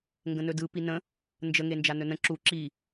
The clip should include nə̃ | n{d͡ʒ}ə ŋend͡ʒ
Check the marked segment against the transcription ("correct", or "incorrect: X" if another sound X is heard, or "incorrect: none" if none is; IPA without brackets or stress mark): correct